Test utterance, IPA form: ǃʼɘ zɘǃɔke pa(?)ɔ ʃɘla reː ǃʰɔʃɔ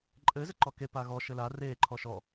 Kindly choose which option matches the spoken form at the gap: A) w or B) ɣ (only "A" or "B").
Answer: B